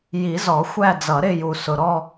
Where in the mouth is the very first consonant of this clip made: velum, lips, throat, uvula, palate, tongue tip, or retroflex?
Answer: palate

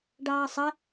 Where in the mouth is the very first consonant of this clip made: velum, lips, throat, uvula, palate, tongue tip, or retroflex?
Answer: retroflex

